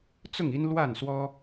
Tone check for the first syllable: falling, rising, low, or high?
falling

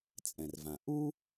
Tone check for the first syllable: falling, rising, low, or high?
low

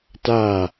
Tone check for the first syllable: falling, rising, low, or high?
falling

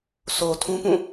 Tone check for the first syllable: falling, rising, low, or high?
low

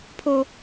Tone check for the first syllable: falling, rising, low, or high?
high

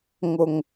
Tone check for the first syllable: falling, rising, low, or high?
low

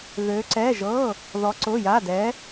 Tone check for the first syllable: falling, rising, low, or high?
rising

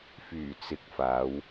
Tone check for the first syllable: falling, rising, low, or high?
low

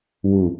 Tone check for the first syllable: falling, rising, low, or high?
low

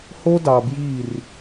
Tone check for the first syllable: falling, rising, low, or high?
high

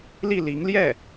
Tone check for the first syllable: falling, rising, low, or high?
falling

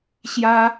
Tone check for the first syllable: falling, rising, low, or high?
high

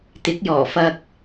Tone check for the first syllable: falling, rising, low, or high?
rising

